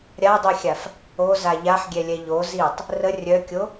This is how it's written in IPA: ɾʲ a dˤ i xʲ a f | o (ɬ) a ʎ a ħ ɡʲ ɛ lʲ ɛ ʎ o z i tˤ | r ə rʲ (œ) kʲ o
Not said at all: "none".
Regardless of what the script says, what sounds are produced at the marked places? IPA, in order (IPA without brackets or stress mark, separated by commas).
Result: z, œ